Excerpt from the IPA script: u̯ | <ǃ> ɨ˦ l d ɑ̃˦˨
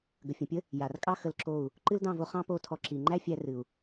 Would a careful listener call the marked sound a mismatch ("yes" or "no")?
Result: no